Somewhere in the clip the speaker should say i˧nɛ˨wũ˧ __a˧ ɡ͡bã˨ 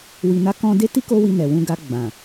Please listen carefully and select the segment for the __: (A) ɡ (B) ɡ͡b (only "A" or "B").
A